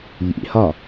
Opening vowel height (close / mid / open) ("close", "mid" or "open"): close